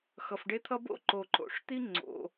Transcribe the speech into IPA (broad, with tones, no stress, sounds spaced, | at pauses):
x ʌ˨ f ɖ e˦ t̪ʰ ʌ˦ b o̰˥ ǃ o˨ ǃ o̰˨ ʂ t̪ i˥ ŋ͡ǀ o̰˨